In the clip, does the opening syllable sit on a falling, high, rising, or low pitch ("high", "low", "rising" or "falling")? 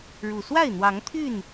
low